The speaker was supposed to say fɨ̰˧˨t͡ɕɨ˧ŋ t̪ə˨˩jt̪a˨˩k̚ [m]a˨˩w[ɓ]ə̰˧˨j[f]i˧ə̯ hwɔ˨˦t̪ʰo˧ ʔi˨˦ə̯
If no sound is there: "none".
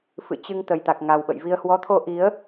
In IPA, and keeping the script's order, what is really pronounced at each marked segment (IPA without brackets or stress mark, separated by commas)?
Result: ŋ, ɓ, v